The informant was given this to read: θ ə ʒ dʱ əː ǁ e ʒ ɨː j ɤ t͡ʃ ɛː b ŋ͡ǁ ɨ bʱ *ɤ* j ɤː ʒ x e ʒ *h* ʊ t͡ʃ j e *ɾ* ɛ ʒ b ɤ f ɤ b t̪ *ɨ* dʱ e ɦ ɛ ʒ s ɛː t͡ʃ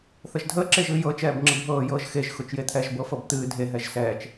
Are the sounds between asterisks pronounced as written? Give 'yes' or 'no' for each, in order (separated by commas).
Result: no, no, no, no